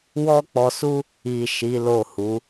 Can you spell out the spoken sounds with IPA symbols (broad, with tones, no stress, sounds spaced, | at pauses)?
w ɔ˦ k͡p ɔ˧ s u˦ | i˨ ʃ i˨˦ l o˦˨ h u˨˦